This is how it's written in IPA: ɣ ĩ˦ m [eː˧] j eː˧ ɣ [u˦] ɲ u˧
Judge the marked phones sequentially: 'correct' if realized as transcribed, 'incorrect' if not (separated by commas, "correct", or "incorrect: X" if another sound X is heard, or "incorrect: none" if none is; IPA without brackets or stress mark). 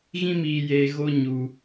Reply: incorrect: iː˧, incorrect: o˦